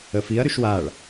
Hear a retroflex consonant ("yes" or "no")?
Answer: yes